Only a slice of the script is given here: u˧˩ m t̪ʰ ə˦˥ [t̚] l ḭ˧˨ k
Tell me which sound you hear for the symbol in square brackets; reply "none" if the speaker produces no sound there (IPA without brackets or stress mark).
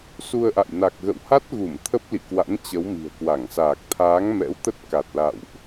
p̚